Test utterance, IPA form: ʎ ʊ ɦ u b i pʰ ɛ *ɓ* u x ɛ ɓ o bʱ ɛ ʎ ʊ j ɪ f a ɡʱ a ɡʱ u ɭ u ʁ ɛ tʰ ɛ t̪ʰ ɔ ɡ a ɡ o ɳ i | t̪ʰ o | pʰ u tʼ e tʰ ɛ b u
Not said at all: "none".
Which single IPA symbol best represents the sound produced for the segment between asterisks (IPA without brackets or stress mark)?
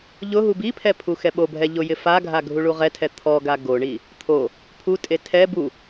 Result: pʰ